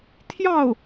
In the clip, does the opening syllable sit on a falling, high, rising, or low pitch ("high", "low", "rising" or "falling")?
falling